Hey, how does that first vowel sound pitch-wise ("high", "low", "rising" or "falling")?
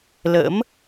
rising